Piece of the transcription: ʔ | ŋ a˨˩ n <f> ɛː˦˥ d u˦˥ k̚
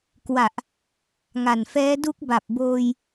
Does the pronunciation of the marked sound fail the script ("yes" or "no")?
no